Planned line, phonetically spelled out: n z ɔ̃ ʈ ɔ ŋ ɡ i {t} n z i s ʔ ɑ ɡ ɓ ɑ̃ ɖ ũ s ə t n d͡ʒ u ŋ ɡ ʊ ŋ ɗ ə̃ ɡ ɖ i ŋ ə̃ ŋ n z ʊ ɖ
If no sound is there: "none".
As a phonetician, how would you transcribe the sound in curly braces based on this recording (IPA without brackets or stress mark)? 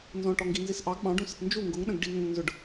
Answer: none